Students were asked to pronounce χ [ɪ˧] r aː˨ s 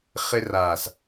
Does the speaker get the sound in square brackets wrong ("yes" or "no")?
no